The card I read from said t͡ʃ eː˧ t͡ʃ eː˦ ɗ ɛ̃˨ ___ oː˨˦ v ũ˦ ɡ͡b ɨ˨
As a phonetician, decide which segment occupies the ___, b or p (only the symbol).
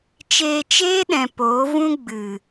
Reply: p